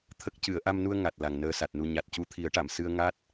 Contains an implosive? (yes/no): no